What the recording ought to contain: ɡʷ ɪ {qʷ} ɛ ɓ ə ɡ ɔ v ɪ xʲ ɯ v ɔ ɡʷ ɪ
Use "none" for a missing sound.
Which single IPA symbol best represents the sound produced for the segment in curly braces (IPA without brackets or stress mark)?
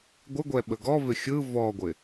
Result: ɡʷ